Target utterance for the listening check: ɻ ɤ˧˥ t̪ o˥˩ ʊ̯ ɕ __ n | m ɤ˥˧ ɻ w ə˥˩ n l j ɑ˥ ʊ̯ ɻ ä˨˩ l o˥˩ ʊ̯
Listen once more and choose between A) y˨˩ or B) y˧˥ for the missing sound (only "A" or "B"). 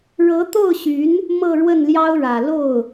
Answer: B